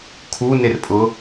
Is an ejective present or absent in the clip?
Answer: present